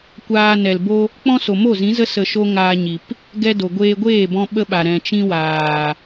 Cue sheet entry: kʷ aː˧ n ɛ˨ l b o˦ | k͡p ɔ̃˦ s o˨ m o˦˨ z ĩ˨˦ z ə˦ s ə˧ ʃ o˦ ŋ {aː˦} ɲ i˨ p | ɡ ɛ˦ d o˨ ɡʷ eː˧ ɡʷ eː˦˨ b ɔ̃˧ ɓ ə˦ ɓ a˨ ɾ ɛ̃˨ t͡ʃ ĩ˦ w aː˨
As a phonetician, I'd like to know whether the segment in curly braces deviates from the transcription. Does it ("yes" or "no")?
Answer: yes